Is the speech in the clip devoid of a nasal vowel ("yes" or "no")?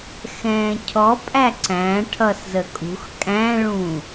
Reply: no